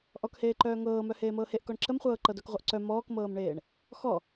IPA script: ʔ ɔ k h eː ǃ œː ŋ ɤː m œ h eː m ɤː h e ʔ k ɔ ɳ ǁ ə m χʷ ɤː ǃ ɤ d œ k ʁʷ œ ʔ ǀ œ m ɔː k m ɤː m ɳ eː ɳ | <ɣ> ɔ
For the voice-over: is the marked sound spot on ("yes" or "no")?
no